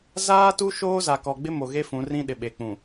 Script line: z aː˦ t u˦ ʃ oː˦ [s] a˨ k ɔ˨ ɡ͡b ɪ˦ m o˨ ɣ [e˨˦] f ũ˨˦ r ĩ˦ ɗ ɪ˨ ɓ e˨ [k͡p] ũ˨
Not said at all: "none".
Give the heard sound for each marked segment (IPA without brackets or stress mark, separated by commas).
z, e˦, k͡p